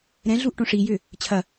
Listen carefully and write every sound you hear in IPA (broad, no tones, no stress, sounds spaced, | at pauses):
ɾ ɛ̃ ɮ u ʔ ʈ õ ʂ i j ʏ | t͡ɕʰ ɐ